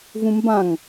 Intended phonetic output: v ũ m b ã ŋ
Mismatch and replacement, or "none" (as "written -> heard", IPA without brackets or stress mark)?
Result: none